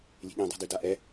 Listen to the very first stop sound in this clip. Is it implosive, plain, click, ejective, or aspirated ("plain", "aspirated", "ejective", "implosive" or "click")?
implosive